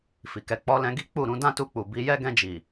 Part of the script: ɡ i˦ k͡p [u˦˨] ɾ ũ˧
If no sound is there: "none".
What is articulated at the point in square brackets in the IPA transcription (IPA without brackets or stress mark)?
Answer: u˦˨